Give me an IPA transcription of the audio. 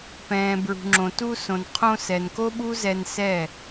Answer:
p ɛ̃ː˨ b ɹ ṳ˨ ŋ͡ǁ õ˨ t u˧ s õ˨ n qʰ õ˧ s ɛ˨ n k o˦ ɓ u˦ z ɛ˧ n s ɛ˦˨

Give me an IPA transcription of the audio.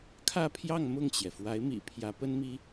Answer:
kʰ ä˥˧ pʰ j ɑ˥˧ ŋ m ʊ˥˩ ŋ t͡ɕ j ɛ˩ f w a˧˥ ɪ̯ m ḭ˨˩ pʰ j ä˧˥ p ə˥ n m i˥

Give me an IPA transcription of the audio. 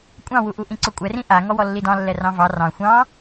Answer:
kʷʼ ɑ̃ w u ʔ u ʔ ĩ ǀ ɵ kʷʼ ɛ r ĩ ʔ a ŋ ɔ w ɔ lː i d ɑ̃ lː ɛ r ɑ̃ v ɑ r ɑ̃ xʷ ɑ̃

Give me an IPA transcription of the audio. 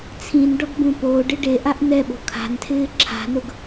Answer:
t͡sʰ ĩ n ɖ ɔ ɡ b ũ p oː ɖ ɪ ɖ e ʔ a ʔ n ɛ ɓ o̤ kʰ a̤ n tʰ ɪː ǁʰ a̤ n ʊ ɡ

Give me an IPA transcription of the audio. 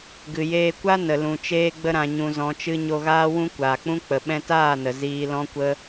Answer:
ɡ ɨ˨ j eː˧ kʷ a˦ n ə˨ l ũ˨ t͡ʃ eː˦ ɡ͡b ə˦ ɾ ã˧ ɲ ũ˧ z ɔ̃˧ t͡ʃ ɨ˦ ɲ o˧ ɣ aː˦ w ũ˦ kʷ aː˨ k͡p ũ˦ k͡p ə˨ ɓ ɛ̃˧ t aː˦˨ n ə˨ z iː˧ l ɔ̃˦ kʷ ə˦

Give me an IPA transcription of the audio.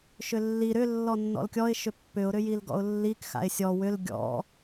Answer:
ʃ ʏ lː i ɾ ʏ lː ɔ nː ɔ̰ l kʲ ɔ ɪ̯ ʃ ʏ pː ʏ ʊ̯ ɾ ʏ j i l ɡ ɔ̰ ʊ̯ lː i k x a̰ ɪ̯ sʲ ɔ w ʏ l ɡʲ ɔ̰

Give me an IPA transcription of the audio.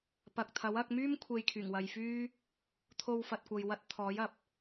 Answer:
p ɐ˨ k̚ t̪ʰ ɐ˨˥ w ɐ˧ k̚ m yː˥ m kʷʰ e˧ j kʰ yː˨˩ ŋ w ɐ˨ j f yː˥ | t̪ʰ o˧ w f ɐ˨ t̚ kʷ ɐ˨ j w ɐ˧ t̚ t̪ʰ ɔː˨˥ j ɐ˨ p̚

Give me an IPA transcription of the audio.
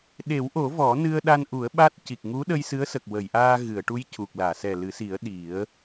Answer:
ɗ e˨˩˦ w ʔ o˨˩˦ v ɔ˨˩˦ n ɨ˧ ə̯ ɗ a˧ n ʔ u˨˩˦ ə̯ ɓ a˦˥ t̚ c i˨˩ k̚ ŋ u˧˥ ɗ ə˧ j s ɨ˧˥ ə̯ s ə˨˩ k̚ w ə˨˩˨ j ʔ aː˧ ɣ ɨ˨˩˨ ə̯ ʈ u˧˥ j c u˨˩ k̚ l aː˨˩˨ s ɛ˨˩ l ɨ˨˩˦ s i˨˩˦ ə̯ ɗ i˨˩˦ ə̯

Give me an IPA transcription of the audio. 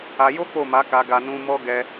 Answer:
a˧ j o˦ k͡p o˦˨ m a˨˦ k a˧ ɡ a˧ n ũ˧ m ɔ˦ ɡ ɛ˦

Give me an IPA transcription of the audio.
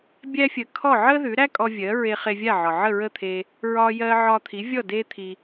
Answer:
bʲ æ˥ fʲ ə˧ kʰ ɔ˥˩ ʕ ə˥ ð ʉ˩˥ ɾ æ˥ kʼ ɔ˧ vʲ ɜ˩˥ ɹ e˧ χ e˧ vʲ a˥˩ ʕ ɒ˩ ʕ ə˥˩ ɹ ə˥˩ t̪ʰ e˧ | ɹ ɒ˧ j ɜ˧ ʕ ɒ˧ t̪ʰ i˩˥ vʲ ɔ˥˩ d e˥ t̪ʰ i˧

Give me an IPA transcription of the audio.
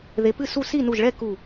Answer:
ð e˨˥ p ɨ˥˧ s u˥˧ s i˥˩ n u˧˩ ʒ ɭ ɛ˥˧ k u˧˩

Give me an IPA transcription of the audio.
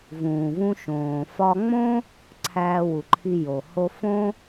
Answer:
v ũː˩ v ũ˧ ʃ õː˩ f ɒ˧ ŋ͡m õ˥ | ǀʰ æː˧ w u˩ ǃʰ i˧ j o˩ h o˧ f õ˥

